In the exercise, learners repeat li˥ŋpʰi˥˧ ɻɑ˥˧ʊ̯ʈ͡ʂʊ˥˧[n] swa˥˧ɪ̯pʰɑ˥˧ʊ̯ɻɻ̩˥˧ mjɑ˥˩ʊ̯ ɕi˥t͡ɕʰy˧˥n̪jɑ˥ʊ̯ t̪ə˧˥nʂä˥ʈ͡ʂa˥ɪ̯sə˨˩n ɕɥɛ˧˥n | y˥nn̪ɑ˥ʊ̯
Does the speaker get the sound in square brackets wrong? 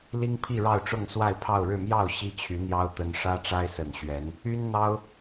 yes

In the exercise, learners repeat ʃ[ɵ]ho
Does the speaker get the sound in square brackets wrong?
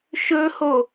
no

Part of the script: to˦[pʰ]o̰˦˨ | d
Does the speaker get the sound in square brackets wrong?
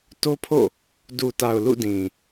no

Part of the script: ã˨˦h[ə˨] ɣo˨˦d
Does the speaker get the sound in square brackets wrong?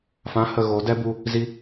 no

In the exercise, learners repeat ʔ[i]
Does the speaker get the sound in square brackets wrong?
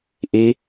no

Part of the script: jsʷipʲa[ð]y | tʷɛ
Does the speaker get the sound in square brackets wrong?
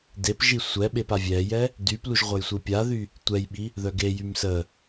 no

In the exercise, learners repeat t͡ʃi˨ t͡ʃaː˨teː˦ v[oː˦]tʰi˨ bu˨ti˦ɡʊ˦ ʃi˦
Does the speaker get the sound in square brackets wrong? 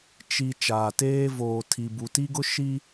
yes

